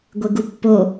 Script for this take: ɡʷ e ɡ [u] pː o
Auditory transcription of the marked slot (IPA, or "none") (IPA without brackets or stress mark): u